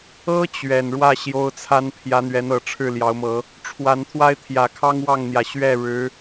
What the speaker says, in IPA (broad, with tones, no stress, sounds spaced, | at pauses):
ɤ˥ t͡ɕ ɥ ɛ˨˩ n ɻ w ä˥˩ ɕ j o˥ ʊ̯ t͡sʰ a˥ n pʰ j ä˧˥ n̪ ɥ ɛ˧˥ n ɤ˨˩ ʈ͡ʂʰ ɻ̩˥˩ l j ɑ˧˥ ʊ̯ m ɤ˧˥ | ʈ͡ʂʰ w a˧˥ n t̪ʰ w a˥ ɪ̯ t̪ʰ j ä˨˩ kʰ ɑ˥ ŋ w ɑ˥˩ ŋ n̪ j ä˩ ɕ ɥ ɛ˥˩ ɻ ɻ̩˧˥